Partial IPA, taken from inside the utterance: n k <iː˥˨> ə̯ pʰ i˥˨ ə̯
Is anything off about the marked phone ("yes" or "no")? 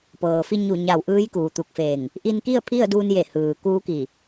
yes